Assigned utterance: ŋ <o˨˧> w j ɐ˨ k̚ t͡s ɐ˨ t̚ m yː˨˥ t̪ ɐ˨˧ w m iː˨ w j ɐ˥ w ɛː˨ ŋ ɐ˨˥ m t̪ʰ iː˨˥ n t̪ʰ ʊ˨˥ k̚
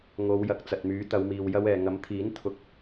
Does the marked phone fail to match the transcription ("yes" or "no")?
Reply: no